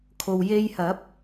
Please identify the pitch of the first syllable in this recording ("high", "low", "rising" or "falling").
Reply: low